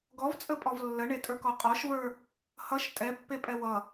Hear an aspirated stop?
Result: no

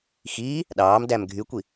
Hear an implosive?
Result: yes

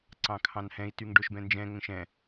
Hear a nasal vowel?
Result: yes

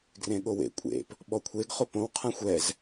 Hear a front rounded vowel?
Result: no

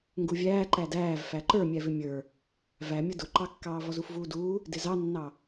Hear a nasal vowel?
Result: no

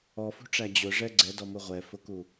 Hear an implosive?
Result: no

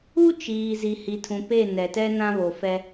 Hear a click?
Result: no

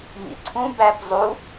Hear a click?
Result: yes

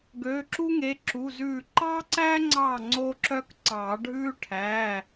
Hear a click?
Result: yes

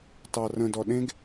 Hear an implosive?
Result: yes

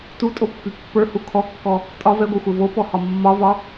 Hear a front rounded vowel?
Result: yes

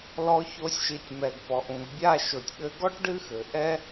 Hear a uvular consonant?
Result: no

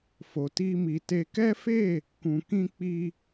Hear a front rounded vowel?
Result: no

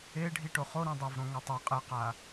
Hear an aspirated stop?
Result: no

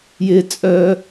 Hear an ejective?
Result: yes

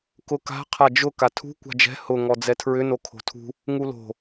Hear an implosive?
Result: no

